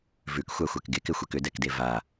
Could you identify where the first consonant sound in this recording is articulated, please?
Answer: labial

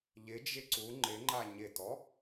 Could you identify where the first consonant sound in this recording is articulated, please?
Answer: palatal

